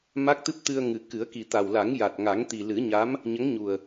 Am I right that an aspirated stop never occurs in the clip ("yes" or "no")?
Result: yes